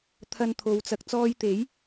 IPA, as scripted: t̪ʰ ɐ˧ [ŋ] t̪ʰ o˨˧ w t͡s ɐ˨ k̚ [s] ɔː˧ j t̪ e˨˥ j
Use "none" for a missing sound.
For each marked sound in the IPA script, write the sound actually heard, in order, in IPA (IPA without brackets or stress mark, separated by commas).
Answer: n, t͡s